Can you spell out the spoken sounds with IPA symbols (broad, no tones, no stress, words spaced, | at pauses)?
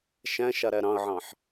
ʃæ̃ʃaɾæ ɾɑ̃ə̯ʕɑ̃ħ